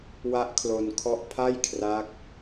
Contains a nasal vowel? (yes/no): no